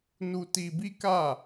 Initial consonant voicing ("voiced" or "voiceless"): voiced